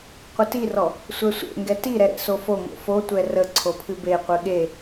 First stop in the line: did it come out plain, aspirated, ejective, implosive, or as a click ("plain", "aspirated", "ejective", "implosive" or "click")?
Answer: plain